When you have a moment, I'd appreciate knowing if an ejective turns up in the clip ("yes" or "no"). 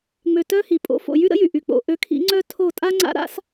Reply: yes